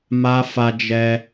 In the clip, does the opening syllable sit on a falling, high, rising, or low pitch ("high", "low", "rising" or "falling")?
high